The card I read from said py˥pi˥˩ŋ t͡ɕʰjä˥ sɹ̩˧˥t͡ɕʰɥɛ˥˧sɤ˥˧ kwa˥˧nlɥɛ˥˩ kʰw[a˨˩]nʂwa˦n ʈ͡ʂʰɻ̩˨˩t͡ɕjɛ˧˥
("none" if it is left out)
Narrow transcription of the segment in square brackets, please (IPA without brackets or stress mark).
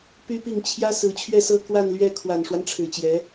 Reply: a˨˩